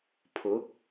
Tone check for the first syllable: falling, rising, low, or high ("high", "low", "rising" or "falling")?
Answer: rising